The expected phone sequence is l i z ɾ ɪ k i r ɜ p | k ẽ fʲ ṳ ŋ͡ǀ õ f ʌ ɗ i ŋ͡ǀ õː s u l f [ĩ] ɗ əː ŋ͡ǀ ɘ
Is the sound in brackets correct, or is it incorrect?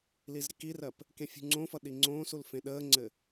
incorrect